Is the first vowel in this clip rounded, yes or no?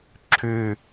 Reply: yes